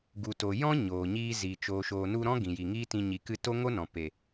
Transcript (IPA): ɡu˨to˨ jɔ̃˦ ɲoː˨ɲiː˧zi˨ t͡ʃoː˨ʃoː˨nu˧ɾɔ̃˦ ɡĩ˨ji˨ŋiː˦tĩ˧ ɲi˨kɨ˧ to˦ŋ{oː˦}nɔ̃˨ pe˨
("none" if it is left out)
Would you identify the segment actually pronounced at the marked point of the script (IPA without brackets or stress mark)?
o˦